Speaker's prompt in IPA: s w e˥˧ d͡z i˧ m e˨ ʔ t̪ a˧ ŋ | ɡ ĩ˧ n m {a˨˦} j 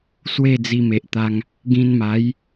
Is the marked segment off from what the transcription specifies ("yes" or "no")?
no